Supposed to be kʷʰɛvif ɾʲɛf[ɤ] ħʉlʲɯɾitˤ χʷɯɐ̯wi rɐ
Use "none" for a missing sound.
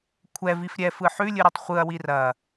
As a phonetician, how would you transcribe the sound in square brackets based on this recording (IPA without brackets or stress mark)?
ɯ